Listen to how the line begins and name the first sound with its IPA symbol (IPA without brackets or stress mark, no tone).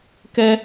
k